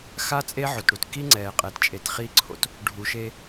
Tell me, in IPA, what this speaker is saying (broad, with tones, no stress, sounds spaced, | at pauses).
x a˦ t͡sʼ e˦ ʕ o˨ t ɽ u˨ t k i˦ ŋ͡ǀ ɛː˨ qʼ ɛ˨ t t͡ʃʼ e˨ t χ iː˦ ǀʰ o̰˦ t | ɖʱ u˨ ʃ e˦